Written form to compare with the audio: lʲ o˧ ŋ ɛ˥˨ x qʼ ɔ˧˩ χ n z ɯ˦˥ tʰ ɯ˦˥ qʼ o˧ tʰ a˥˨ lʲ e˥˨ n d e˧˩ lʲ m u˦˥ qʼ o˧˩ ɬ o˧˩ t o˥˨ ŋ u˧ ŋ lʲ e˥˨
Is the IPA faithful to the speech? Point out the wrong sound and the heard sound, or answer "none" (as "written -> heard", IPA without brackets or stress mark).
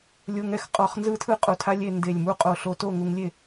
a˥˨ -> a˦˥